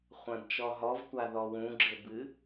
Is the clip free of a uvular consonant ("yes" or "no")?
no